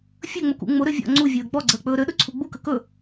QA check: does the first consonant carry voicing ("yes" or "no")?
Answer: no